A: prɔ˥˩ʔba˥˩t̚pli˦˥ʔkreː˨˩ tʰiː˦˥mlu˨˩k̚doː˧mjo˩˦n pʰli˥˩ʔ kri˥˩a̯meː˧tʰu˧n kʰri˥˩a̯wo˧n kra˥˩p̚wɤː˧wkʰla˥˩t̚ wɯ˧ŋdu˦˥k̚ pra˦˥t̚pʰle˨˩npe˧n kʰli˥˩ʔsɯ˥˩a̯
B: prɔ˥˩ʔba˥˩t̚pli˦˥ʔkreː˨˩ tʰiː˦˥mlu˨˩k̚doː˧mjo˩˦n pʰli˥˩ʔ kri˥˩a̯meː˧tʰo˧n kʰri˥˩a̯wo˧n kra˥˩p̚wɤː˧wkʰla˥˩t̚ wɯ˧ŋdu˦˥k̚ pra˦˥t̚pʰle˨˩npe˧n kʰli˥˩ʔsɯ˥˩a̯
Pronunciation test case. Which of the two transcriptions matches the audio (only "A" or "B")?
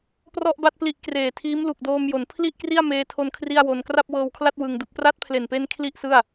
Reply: B